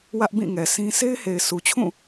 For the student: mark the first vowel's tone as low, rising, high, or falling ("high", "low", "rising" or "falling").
high